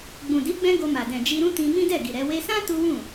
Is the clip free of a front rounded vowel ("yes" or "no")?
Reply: yes